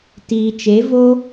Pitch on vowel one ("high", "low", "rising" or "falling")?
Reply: low